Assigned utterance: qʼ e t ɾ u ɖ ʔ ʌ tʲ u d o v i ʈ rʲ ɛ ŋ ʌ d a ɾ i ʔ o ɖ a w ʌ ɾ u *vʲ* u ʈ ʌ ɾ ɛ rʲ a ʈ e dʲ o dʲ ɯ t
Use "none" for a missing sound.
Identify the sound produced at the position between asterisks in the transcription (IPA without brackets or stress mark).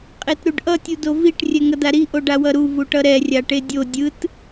v